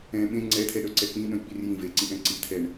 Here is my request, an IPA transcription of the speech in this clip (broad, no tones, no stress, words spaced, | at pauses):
ɛ̃ ɓẽ ŋ͡ǀɛt̪ʰɛɗœǀɛ k͡pĩɗœ̃jk͡pir jĩ veǀĩʔɛ̃ ǀit̪ʰɛɳ